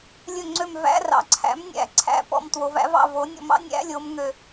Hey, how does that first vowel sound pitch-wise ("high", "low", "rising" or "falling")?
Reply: falling